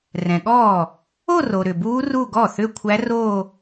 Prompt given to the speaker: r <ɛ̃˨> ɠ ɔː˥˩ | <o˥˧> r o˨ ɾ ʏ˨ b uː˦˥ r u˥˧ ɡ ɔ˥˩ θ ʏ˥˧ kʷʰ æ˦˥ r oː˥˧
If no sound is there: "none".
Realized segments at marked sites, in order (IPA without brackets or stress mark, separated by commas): ɛ̃˨, o˥˧